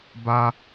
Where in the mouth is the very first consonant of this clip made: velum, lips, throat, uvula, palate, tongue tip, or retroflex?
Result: lips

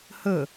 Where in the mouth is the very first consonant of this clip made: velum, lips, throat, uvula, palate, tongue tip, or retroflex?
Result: throat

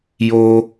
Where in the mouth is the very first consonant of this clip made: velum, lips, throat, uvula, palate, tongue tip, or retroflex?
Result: palate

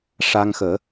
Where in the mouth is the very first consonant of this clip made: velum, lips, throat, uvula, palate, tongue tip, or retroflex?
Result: retroflex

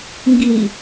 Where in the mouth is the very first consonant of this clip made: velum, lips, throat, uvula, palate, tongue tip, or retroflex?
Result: velum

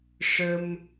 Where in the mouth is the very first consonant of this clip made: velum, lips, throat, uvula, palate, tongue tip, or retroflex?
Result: retroflex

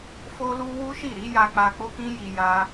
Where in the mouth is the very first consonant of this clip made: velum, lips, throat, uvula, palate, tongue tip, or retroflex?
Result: lips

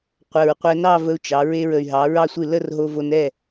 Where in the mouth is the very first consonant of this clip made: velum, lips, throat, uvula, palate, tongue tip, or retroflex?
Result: uvula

